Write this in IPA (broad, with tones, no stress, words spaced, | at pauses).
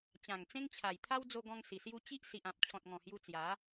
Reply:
t͡ɕã˨˩ŋt͡sẽ˦ŋt͡ɕʰa˨˩j t̪ʰa˦wd͡zo˧ɡɔ̃˧ŋ si˨˩sju˦ t͡ɕi˦ʔ si˨ʔã˨p̚ t͡ɕʰɔ̃˨t̚ŋɔ̃˨˩hju˧ t͡sja˨˦